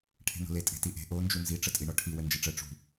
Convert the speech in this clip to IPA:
ʈʰe̤no̤le tʼe̤tiʔe̤ ʔo nd͡ʒunzi ʈ͡ʂətʼiɳɔʈʰi wənd͡ʒeʈ͡ʂə ʈ͡ʂṳ

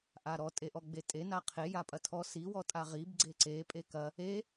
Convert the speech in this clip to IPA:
ʔaɾɔ tʼeʔɔɡ͡betʼe naqʰe japʼɐtʰɔ si wɔtʼaʁib ɡ͡ǀeǀe pʼekɐ | e

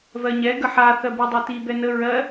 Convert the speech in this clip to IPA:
vɜɲɛ ɡəħa θɜbidˤɛti bɛnə ɹɜ

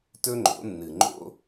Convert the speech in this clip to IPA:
tɵ˦ŋ͡ǃo̰˨˦nːɨ˨ ŋ͡ǃo̰˦

